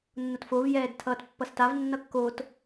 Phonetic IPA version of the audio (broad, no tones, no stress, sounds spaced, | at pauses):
nː o t f o v j ɛː d tʰ ʌː t pː ʌ s t a v nː ʌ kː o t